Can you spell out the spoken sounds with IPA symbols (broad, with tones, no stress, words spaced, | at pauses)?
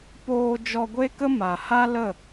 poː˧ d͡ʒɔ˧ɡʷe˦kə˦ ma˨ha˦lə˦˨